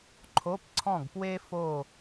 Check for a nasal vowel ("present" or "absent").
present